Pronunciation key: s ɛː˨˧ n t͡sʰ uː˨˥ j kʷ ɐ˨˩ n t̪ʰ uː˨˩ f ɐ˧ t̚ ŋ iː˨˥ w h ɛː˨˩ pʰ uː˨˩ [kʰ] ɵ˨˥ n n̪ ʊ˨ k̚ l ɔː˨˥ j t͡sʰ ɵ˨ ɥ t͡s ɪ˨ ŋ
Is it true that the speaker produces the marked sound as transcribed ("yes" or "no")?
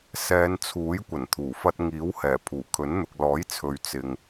yes